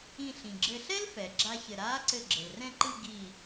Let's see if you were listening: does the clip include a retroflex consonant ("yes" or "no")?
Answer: no